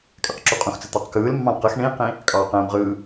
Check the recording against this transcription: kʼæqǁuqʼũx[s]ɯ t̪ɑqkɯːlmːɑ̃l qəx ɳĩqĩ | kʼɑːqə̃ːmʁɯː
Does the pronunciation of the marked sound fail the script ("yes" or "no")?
yes